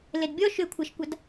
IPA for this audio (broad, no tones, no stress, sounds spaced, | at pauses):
l e d bʲ ɔ ʃ ʏ kʷʰ a ʃ kʷ a d